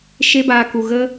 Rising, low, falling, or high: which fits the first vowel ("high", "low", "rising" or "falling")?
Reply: high